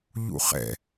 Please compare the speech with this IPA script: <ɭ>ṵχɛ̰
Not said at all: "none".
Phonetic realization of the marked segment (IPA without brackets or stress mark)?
ʎ